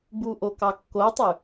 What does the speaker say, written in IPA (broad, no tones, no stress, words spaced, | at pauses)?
buʔokɑ kːotˤy